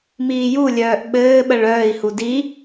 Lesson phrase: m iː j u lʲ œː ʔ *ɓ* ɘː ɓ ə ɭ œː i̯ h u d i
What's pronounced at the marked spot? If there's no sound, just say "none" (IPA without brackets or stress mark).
ɓ